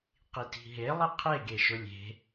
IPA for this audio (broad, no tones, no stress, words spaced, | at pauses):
qiti̤ɦe lˠiqʰe ɡeʃʊlʲe̤